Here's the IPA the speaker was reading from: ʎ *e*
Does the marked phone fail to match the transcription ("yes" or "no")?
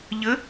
yes